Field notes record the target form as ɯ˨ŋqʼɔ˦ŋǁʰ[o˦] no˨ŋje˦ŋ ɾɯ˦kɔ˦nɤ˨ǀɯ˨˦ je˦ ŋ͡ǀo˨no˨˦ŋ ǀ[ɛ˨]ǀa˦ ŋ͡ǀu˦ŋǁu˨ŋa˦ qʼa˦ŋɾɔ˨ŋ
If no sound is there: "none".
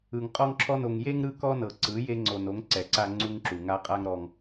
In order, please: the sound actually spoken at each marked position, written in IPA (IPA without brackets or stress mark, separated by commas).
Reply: ɔ˦, ɛ˨